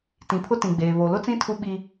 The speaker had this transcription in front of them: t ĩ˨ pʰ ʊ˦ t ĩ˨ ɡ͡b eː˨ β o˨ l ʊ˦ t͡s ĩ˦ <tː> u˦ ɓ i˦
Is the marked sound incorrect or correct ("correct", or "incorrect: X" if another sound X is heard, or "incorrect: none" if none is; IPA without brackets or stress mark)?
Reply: incorrect: tʰ